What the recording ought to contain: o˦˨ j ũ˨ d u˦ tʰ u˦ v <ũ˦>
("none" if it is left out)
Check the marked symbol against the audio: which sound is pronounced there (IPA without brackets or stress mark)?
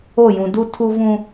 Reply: ũ˦